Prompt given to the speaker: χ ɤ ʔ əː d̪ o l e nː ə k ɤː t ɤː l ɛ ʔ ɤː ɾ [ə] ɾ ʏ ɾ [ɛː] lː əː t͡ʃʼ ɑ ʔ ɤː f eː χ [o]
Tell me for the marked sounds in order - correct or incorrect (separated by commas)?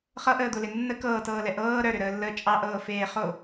incorrect, incorrect, correct